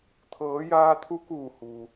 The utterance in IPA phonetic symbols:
t̪ʰ ɤː˩˧ j aː˧ t̪ʰ u˧˥ k uː˧˩ h uː˩

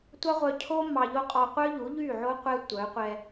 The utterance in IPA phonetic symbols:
tʷ ɑ˦ ʁʷ œ˧ cʰ o˦ m ɑ˧ ʎ o˦ qʼ ɔ˧ qʷ œ˦ ʎ u˨˦ ʎ y˦˨ ʕ o˦ qʷ ɛ˦ tʷ œ˨˦ qʷ ɛ˧

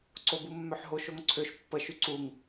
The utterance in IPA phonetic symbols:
ǀ o b u mː œ ħ ɦ o ʃ o ŋ ǀʰ ø ʃ pː ə ʃ y ǀ u ŋ

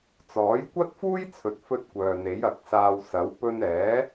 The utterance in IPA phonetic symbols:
t͡s ɔː˨˥ j kʷ ɐ˥ t̚ f uː˥ j t͡sʰ ɵ˨ t̚ f ɵ˧ t̚ kʷ œː˨ n̪ e˨˥ j ɐ˨ k̚ s aː˧ w s ɐ˨˥ w p ɵ˧ n ɛː˨˥

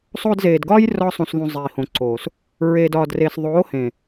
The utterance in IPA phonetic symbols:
sˤ oː˧ d z eː˨ d ɡ ɒː˦ j r ɒ˧ sˤ ũ˨ s ð ũ˨ zˤ iː˨ h õ˨ ǀ oː˨ s | ɹ e˨ d ɒː˨ d r eː˨ s ðˤ oː˨˦ h ẽ˨

